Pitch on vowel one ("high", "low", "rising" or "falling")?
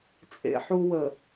high